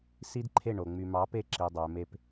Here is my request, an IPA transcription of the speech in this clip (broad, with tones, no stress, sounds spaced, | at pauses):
s i˦ d ǃʰ e˦˨ ɳ o˨ ŋ͡m y˨ m ɑ˨˦ p e˧ ǁ i˨ dˤ ø˨ m e˧ p